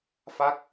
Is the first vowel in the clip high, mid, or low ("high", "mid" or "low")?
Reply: low